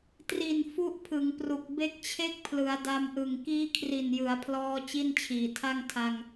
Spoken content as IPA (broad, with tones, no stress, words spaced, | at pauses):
tri˨˩n fu˥˩ʔpʰɯ˩˦ŋpru˨˩k̚ be˦˥k̚t͡ɕʰe˥˩k̚pʰlɯ˩˦a̯ da˧mʔɯ˨˩ŋ kiː˦˥kʰri˨˩njɯ˩˦a̯pʰlɔː˧ t͡ɕi˥˩nt͡ɕʰiː˨˩tʰa˥˩ŋ tʰa˧ŋ